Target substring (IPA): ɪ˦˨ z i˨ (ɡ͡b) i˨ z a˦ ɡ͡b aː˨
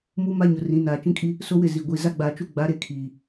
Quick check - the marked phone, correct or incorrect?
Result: incorrect